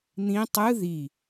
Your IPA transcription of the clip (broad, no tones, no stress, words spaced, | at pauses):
n̪ĩ tˤɯ ði